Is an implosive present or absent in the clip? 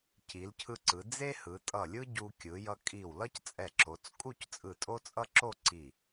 absent